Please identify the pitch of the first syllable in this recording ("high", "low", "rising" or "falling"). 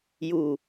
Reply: low